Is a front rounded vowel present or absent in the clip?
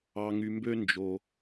present